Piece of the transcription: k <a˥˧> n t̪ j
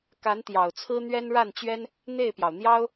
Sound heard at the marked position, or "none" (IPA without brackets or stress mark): a˧˥